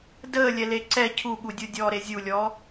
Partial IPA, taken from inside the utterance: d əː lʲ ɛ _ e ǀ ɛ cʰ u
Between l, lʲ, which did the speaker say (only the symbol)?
l